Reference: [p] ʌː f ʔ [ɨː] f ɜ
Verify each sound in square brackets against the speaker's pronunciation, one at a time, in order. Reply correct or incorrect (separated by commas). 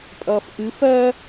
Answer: incorrect, incorrect